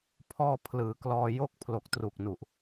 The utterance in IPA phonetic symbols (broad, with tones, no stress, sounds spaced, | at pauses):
pʰ ɔː˧ pʰ l ɯː˩˦ k l ɔː˧ j o˥˩ k̚ pʰ l o˨˩ k̚ t r u˨˩ k̚ n u˨˩ ʔ